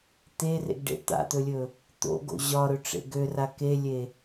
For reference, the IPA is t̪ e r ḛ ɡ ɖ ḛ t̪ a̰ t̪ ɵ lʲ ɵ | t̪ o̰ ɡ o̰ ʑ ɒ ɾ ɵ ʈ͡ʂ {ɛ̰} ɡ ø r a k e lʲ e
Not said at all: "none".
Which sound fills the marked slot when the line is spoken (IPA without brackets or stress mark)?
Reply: ḛ